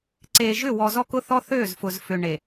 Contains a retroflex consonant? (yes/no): yes